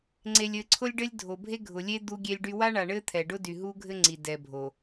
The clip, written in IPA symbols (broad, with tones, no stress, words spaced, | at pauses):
ŋ͡ǀe˨lʲɘ˨ǀʰʊ˦lʲɖɘ˦lʲ dʱo˨bʱe˦ɡʱʊ˨lʲe˦ d̪u˦ɡʲe˦lʲɖy˦ wa˦ɳa˨ɳɘ˦ t̪ʰɛ˨ɖʊ˦dy˨ ɦu˦ɡʱɘ˦ŋ͡ǀi˨ dɛ˨bʱo˨